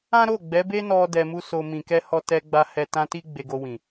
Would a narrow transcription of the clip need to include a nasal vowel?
yes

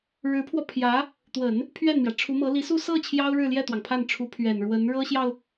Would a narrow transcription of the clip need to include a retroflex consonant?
yes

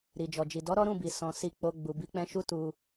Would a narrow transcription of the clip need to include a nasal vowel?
yes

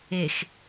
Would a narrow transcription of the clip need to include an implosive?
no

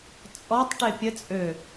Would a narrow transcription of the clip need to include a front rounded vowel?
yes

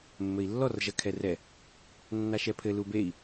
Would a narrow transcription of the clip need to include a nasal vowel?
no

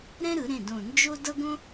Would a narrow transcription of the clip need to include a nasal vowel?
yes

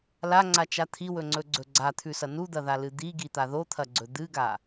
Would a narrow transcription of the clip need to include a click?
yes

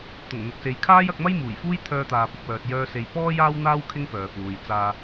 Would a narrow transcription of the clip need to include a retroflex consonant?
no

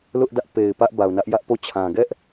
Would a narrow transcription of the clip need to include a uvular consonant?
no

